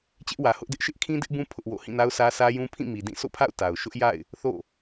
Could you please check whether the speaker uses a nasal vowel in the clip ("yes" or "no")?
yes